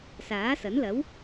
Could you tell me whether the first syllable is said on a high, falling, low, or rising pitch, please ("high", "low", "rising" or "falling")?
rising